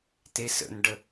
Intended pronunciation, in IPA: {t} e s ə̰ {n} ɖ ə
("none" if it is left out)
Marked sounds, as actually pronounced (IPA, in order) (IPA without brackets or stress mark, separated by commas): t, n